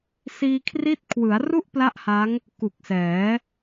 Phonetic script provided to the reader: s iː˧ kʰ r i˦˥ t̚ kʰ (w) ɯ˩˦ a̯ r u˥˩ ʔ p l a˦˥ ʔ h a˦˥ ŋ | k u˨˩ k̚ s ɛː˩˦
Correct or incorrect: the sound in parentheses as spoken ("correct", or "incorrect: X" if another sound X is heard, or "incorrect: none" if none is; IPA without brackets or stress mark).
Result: correct